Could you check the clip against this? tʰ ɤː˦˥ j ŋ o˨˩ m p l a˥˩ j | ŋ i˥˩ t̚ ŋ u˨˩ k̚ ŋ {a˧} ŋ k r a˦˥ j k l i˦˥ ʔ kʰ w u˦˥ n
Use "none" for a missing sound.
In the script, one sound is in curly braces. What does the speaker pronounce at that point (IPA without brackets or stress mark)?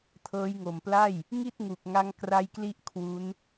a˦˥